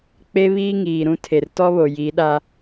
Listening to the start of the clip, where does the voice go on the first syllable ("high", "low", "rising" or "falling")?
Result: high